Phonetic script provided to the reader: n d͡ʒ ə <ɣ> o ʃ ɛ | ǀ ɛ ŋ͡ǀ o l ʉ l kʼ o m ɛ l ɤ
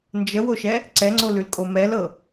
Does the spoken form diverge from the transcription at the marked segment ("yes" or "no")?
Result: yes